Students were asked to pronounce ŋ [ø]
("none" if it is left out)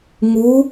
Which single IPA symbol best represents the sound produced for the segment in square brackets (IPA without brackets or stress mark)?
u